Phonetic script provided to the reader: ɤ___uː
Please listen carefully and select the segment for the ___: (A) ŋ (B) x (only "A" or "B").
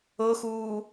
B